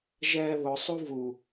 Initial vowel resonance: oral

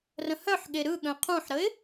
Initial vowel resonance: nasal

